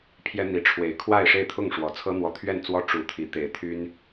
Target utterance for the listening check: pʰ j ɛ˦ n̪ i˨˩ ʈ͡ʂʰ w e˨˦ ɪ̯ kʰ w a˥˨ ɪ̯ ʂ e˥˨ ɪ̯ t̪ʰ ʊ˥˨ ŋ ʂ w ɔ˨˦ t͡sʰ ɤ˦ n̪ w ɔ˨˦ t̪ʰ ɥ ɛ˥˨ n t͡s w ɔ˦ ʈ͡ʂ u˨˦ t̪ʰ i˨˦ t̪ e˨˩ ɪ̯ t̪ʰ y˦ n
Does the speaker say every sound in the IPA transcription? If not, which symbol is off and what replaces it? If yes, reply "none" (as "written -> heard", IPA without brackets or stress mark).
none